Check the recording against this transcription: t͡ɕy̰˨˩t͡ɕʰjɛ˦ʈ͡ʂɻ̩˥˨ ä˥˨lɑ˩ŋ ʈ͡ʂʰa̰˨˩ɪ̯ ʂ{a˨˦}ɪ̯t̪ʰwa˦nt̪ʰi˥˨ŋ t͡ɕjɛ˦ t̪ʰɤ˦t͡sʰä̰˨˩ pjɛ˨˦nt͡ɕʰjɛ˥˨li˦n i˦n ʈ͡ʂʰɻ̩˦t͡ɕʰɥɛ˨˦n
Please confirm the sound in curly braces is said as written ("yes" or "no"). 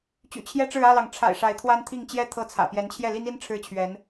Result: yes